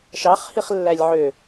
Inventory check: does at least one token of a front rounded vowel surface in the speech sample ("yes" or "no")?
yes